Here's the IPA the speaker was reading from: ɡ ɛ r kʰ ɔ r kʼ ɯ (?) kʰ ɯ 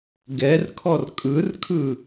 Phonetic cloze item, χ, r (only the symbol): r